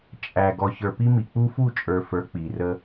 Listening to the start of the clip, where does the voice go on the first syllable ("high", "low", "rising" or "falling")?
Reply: low